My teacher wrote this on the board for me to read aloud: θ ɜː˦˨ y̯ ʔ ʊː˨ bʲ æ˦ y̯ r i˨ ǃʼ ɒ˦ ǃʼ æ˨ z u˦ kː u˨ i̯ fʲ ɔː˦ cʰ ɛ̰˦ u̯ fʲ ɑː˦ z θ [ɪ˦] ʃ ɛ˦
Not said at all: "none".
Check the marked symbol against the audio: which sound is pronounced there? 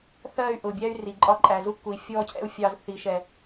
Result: i˦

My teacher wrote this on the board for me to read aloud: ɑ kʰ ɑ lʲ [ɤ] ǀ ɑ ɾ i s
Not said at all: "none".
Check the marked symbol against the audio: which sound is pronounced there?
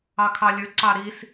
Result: ɵ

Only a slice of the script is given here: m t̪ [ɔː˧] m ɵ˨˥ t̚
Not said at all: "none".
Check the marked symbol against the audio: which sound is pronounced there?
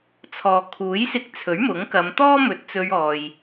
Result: ɔː˥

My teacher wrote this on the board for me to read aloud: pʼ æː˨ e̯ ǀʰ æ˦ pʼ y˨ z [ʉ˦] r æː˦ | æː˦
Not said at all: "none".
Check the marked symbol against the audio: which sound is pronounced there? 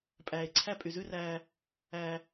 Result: ʉ˦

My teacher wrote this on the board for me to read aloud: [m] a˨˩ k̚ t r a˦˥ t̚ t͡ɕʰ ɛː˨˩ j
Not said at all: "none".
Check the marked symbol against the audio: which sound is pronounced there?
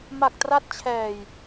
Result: m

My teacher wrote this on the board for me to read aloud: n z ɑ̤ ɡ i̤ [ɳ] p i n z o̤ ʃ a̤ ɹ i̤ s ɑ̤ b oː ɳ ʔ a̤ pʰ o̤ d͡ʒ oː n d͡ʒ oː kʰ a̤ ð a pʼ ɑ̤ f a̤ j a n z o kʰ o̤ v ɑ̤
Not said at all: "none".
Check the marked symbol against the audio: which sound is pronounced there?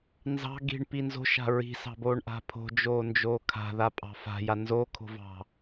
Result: ɳ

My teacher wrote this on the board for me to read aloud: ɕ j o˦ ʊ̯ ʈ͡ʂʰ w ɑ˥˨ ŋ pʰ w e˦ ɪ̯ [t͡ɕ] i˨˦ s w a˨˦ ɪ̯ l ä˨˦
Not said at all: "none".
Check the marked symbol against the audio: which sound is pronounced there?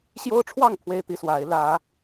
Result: t̪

